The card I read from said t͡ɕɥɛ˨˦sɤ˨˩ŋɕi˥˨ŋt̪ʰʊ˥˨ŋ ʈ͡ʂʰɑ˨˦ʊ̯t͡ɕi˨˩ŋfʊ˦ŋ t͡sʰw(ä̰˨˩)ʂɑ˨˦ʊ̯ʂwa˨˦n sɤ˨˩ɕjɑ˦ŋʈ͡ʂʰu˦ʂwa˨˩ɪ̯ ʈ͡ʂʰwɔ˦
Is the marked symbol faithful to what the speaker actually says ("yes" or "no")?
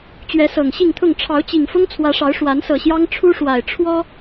no